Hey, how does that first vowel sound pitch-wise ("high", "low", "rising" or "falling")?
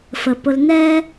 low